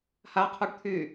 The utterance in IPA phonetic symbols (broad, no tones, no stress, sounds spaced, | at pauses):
h a qʰ u ɖ t̪ʰ y